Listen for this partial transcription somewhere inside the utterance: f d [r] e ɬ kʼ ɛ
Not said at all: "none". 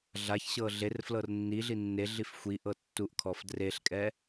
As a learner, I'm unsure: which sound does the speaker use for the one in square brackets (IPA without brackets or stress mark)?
r